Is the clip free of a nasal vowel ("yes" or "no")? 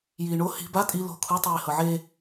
yes